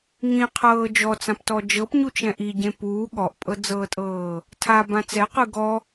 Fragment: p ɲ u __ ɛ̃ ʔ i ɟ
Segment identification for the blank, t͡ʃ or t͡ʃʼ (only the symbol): t͡ʃ